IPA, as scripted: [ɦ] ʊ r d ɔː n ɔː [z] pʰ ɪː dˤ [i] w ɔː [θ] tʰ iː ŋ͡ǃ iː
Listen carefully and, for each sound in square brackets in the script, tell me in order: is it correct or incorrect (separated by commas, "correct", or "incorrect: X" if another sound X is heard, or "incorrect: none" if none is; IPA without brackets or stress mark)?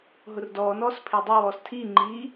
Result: correct, incorrect: s, correct, incorrect: s